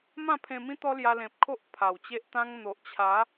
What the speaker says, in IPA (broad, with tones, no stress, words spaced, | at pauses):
mã˥˧pʰẽ˧mĩ˦ t̪ɔ˦lja˧lẽ˨p̚kʰo˦ʔ pʰa˨˩wt͡ɕe˦ʔt̪ã˦ŋ n̪o˨ʔt͡ɕʰa˨˦